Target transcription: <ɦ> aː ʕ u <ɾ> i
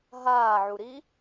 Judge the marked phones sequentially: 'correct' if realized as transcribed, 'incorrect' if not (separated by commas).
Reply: correct, correct